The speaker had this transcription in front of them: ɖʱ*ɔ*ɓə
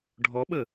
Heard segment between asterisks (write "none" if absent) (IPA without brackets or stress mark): ɔ